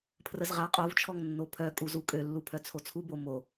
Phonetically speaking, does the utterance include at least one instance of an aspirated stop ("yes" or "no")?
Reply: yes